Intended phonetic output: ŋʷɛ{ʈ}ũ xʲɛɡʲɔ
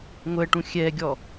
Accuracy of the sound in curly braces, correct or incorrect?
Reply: correct